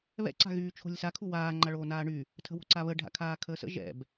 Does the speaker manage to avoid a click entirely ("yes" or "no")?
no